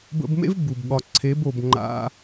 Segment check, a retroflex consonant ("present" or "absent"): absent